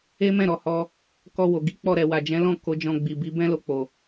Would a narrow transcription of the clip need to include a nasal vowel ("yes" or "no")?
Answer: yes